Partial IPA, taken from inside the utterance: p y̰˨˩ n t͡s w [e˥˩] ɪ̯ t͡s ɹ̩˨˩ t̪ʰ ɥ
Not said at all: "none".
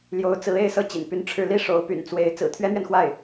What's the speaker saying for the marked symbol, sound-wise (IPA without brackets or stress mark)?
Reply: e˧˥